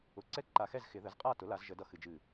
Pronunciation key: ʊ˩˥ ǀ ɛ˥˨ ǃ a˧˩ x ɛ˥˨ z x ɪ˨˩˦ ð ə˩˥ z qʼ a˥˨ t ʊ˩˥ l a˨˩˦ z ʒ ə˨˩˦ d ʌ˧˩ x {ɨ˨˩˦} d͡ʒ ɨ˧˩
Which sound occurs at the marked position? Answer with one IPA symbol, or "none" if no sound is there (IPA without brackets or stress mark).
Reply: ɨ˨˩˦